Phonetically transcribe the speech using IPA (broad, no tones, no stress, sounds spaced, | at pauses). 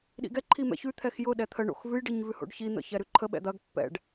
ɗ ḭ ɡ ɛ ǃʰ i m ɛ̰ ç ʉ t̪ʰ ɛ x j ʊ ɗ ɛ t̪ʰ ə ɳ o̰ x v ʉ j ɖ i ɲ v ʉ h o̰ ɖ ç i n̪ ə̰ ç ɛ ɾ ʉ ǃʰ ə ɓ ɛ̰ d̪ ɐ ɡ pː ɛ̰ ɖ